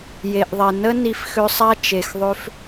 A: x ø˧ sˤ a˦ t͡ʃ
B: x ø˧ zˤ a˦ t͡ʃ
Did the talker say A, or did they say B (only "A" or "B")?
A